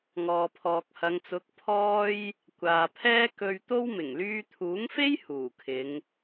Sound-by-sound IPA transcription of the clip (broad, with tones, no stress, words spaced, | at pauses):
ŋɔː˨pʰɔː˨k̚hɐ˨˧ŋt͡sʊ˨˥k̚ pʰɔː˥j | kʷaː˨pʰɛː˥ kɵ˧ɥt̪o˥w mɪ˨˩ŋlyː˧t̪ʰuː˨˥ŋfe˥j huː˨˩kʰɪ˨˧ŋ